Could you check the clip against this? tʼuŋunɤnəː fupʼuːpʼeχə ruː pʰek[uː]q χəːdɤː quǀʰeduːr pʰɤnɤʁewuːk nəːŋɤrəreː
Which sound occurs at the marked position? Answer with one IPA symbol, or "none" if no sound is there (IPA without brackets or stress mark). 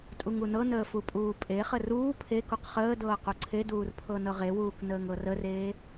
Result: u